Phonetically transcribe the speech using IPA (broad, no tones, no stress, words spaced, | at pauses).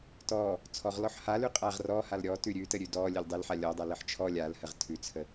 tɔ | t͡sʰɔʁlɔħ halʉ qʼaʁ rɔhal ɾʲɔtʉ ɾʲʉtəɾʲʉ dɔlʲəlʲ dˤəlħa lʲɔdˤaləħ t͡ʃʰɔ lʲalhəʁ tʰʉt͡sʰə